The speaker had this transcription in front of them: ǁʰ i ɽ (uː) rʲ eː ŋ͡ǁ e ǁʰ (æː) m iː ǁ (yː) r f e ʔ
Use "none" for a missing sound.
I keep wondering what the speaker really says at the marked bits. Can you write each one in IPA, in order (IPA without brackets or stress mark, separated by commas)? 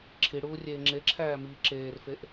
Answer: uː, æː, eː